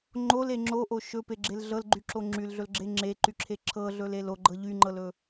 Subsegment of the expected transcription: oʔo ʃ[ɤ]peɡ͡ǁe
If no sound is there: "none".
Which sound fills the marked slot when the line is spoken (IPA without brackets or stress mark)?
ɵ